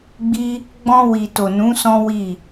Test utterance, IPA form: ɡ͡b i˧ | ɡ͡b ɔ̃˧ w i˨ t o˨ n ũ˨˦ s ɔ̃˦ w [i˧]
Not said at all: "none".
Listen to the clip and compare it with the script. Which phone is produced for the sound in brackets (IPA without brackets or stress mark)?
i˦˨